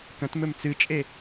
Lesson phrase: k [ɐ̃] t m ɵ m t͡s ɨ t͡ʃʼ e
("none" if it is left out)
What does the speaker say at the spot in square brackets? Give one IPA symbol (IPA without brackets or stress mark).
ɐ̃